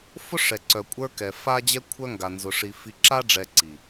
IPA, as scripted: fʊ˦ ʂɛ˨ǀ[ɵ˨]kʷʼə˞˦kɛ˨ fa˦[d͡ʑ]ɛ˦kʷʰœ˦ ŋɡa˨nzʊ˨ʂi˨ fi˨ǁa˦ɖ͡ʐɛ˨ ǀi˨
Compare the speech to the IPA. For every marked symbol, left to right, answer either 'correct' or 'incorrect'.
incorrect, correct

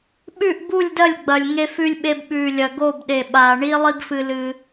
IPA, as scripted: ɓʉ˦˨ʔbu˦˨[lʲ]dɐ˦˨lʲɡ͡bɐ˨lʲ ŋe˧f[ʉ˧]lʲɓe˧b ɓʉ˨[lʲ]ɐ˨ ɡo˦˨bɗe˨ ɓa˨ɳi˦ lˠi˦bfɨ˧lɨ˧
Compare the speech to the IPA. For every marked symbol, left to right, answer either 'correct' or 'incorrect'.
correct, correct, correct

